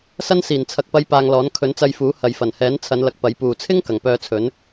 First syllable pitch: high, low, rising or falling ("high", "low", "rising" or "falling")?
high